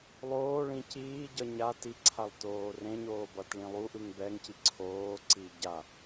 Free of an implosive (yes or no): yes